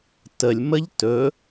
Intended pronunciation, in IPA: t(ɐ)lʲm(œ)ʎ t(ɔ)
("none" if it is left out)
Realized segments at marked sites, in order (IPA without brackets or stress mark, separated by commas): ə, ə, ɵ